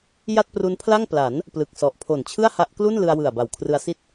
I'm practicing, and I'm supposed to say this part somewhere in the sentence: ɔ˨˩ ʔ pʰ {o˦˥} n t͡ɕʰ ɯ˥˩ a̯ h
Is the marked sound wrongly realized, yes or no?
yes